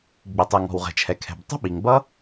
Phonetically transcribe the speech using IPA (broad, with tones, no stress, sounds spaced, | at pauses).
ɡ͡b i˩ tˤ ɪ˩ ŋ ɔ̤˩ w ʁ ɛ̤˩ t͡ʃʰ ɛ˩ kʰ ɛ̤˩ b tˤ ə̤˥ ɓ i˩ ŋ b ʌ˥